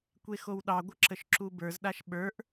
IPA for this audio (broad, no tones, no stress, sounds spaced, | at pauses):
kʷ e x o w ɗ ɑ ɡʷ ə ǁ ə ʃ ǁ u b ə˞ z ɗ a ʃ ɓ ə˞ ʔ